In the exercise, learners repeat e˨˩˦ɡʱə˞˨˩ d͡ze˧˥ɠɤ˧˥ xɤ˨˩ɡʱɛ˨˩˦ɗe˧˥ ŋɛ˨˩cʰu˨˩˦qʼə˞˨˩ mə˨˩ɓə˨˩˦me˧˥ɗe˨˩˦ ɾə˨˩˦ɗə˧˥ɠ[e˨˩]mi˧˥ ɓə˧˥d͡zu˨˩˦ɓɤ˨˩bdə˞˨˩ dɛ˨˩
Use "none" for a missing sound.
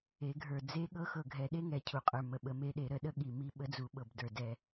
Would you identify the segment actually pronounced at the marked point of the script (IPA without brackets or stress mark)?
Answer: i˨˩